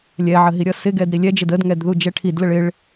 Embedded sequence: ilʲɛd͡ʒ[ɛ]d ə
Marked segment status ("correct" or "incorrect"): incorrect